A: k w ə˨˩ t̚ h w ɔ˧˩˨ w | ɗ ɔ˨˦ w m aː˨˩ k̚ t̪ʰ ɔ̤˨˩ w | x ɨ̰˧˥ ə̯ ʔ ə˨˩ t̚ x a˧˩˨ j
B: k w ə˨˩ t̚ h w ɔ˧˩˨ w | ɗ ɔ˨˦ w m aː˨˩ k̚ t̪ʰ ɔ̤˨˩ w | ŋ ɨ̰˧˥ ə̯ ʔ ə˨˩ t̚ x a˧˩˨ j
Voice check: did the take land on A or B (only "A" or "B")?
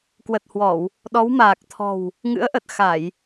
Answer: B